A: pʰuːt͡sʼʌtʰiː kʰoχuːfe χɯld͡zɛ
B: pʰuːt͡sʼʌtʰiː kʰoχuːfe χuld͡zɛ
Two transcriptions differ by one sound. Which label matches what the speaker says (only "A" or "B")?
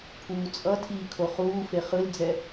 A